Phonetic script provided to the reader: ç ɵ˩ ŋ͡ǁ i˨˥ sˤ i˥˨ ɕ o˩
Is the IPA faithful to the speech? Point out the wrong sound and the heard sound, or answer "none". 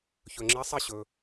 o˩ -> ɵ˩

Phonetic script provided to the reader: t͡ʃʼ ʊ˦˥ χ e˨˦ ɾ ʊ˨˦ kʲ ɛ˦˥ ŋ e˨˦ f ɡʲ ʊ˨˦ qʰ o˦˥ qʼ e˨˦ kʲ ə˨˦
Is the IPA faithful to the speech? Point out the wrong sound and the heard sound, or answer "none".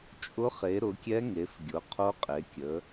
none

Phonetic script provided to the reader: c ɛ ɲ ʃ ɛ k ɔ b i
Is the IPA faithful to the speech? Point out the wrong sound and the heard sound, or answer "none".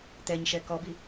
c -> t̪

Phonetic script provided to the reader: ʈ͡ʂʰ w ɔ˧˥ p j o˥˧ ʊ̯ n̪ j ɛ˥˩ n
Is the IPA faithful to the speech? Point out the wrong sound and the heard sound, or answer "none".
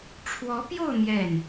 none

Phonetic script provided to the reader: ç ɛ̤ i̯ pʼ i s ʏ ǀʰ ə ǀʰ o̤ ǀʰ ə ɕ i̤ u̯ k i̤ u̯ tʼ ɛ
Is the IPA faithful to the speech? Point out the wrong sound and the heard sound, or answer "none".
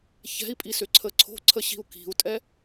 none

